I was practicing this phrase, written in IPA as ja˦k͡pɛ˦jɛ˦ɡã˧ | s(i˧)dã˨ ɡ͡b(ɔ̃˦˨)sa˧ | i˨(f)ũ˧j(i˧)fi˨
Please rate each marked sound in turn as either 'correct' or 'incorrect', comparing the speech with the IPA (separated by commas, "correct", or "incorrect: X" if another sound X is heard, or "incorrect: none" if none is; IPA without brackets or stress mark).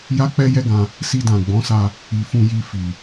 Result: correct, incorrect: ɔ̃˨˦, correct, correct